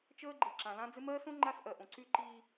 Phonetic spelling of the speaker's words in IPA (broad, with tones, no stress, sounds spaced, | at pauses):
t͡ʃ əː˦ ɡ͡ǃ i˨ ǁ ã˨ l ã˦ d͡z ɪ˦ m ɜː˦ s õ˦ ŋ͡ǃ a˦ s ʔ ɜ˨ ʔ õ˨ ǀ y˦ ǃ i˦